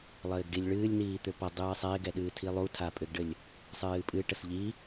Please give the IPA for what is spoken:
lˠ ɘː ɡ ɖ i lʲ ɭ ɨː lʲ n iː t̪ ʏ p ʌ dˤ ɨː sˤ ɛ ɪ̯ ɡ ɛ ɗ ɨː tʰ i lˠ u tʰ a pʼ ʏ ɡ ɖ ɘ lʲ | sˤ ɨː pʼ ɨ ʈ ə s ʎ i

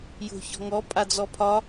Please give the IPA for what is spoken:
j o̤ ç ɔ̤ ŋ ɔ pʼ a d͡z ɔ pʰ ɒ

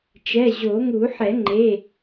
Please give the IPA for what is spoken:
t͡ʃ ɛ˩˧˩ ʑ o˨˩˦ ŋ u˨˩˦ ħ ɛ˨˩˦ ŋ͡ǃ e˩˧˩

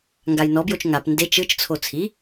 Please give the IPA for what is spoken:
ŋ ɡ a j n ɔ b j o t͡ʃ ŋ a p n d e t͡ʃ ɯ t͡ʃ t͡sʰ o t͡sʰ i

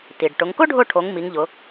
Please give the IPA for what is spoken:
t i˩ ɖ ʈ ʊ˩˧ ŋ k ʊ˥ ɖʱ ʊ˦˨ ʈʰ o˩˧ ŋ m i˨˥ ŋ ʎ ʊ˨˥

